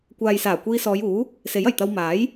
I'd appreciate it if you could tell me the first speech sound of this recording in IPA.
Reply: kʷ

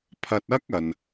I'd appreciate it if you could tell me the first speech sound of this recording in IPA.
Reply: pʰ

